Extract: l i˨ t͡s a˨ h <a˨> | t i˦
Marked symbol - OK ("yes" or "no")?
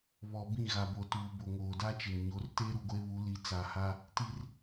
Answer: no